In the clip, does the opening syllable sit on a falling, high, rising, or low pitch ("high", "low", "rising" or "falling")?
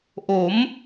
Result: rising